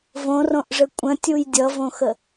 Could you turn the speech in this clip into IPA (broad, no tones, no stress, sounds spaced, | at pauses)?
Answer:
v õ r õ ʔ ʐ ɘ kʷʼ ə̃ tʲ u j dʲ ʌ v õ x ə